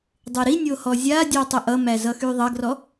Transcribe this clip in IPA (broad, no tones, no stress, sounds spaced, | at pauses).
dˤ e ɾ i nʲ o h ɔ zʲ a dʲ o tˤ ə ʔ ʌ m æ z ʌ x y ðˤ ʌ ɡ r ɔ